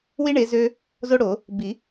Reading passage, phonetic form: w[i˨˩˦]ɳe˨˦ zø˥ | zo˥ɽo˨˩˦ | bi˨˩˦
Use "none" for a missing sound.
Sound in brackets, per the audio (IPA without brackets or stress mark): i˥